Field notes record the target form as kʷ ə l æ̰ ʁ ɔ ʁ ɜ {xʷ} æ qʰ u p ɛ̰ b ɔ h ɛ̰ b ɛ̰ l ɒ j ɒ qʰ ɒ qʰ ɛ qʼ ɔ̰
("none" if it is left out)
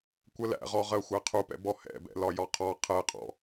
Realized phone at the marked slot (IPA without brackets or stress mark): xʷ